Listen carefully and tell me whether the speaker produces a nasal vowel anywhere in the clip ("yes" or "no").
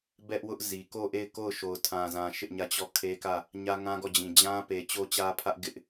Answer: yes